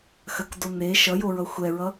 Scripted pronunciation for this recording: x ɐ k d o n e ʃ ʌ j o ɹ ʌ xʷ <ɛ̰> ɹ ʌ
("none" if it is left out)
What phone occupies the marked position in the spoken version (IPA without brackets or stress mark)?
ɛ